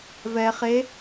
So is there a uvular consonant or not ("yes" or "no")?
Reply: yes